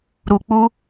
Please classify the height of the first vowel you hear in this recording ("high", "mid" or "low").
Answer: high